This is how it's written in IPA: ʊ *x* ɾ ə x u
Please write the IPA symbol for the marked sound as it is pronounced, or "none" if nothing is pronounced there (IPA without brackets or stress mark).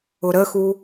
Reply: none